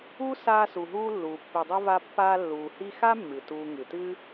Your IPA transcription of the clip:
u˥ s aː˦ s u˨ ɦ uː˦ lː uː˨ pː i˨ dˤ u˦ v a˦ pː aː˦ lː uː˨ h i˥ x a˥ mː ɨ˩ t uː˨ ŋ ɨ˩ t ɨ˦

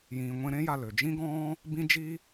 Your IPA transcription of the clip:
j ĩː˨ ŋʷ ẽ˧ ɾ ẽ˦ j a˧ l ø˨ d͡ʒ ĩ˦ ɡ ɔ̃ː˦ | b ĩ˦ d͡ʒ i˦

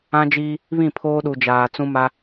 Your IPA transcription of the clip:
ã˦ d͡ʒ iː˦ | β ĩ˦˨ pʰ oː˦ ɗ u˨ d͡ʒ aː˨ t͡s ũ˦ m a˦

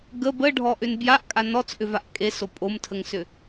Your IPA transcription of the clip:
ɡ ə b ə ɖʱ ɔ ʔ ʏ n b j a ʔ kʼ a n ɔ t͡s ʔ ʏ v a ʔ kʼ e s o pʼ o m tʰ ə ŋ s ʏ

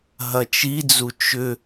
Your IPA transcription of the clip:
ɦ ɐ t͡ʃ i d͡z u t͡ʃ ʏ

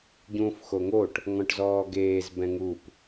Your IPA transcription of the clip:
ɟ ũː f x o ŋ o ʈ | ŋ ɔ̃ ʈ z ɔː ɡ eː z b ɛ̃ ŋ u p

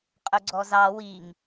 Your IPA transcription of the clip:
qʼ ɵ ɡ͡ǀ ɔ z ɑ w i ŋ

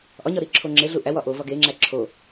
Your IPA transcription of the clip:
ʔ ɒ ɲ ɒ ɾ i ǁʰ o ŋ͡ǁ e ɮ u ʔ æ w ɒ ʔ o v ɒ ɡ e ŋ͡ǁ æ ǁʰ o

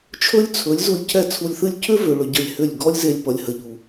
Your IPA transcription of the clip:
t͡ʃʰ ɵ˦ lʲ t͡sʰ ɵ˨˦ lʲ z u˧ lʲ cʰ ɛ˦˨ t͡sʰ u˧ lʲ θ ɨ˦ lʲ cʰ ʏ˦ v ʏ˨ ɭ ʏ˧ ɟ ə˦˨ lʲ h ʏ˦˨ lʲ ɡ ɔ˦ lʲ z e˧ lʲ p ʌ˨ lʲ h ə˨ ʎ u˨

